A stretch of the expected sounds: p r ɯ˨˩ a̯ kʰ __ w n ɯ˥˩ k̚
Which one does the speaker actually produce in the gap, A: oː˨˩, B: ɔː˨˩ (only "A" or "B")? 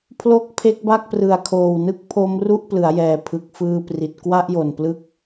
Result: A